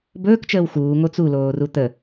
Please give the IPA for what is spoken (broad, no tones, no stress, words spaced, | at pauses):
bɵːkt͡ʃəːw xuːŋo t͡suloːru t̪ə